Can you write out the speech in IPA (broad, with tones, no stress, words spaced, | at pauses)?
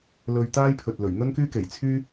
lɵ˧ɥt̪aː˥jpʰɵ˨t̚ lɵ˨˩ɥn̪ɵ˥nkyː˥ke˨˩j t͡sʰyː˥